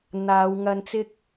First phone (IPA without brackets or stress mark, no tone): n̪